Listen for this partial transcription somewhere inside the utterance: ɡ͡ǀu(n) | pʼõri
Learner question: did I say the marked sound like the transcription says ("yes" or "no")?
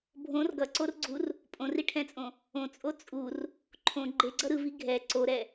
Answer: no